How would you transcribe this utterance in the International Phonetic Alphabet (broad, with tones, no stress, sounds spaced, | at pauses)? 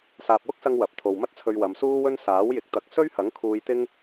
s aː˨ p̚ w ʊ˥ k̚ s ɐ˧ ŋ w ɐ˨˥ p̚ t̪ʰ o˨ w m ɐ˥ t̚ t͡sʰ ɵ˧ ɥ w ɐ˨˧ m s uː˥ w ɵ˥ n s aː˨˥ w j ɪ˨ k̚ t̪ ɐ˨˥ k̚ s ɵ˥ ɥ h ɐ˨˥ ŋ kʰ uː˧ j t̪ ɪ˥ ŋ